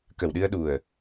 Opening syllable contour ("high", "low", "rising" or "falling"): low